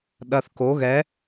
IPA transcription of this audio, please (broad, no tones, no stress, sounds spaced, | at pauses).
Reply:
ɗ ɐ θ k o ɣ ɛ